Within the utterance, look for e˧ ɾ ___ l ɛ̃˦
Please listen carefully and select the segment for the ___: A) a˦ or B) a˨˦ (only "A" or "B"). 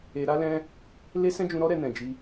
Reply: A